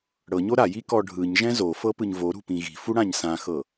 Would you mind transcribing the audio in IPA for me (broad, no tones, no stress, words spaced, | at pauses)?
ɽɤɲo ɾaji kɔɖʱɯɲʒɛ̃ zofɤ pɯɲvoɾṳ pĩɣi̤fu ɽãɲsãxɤ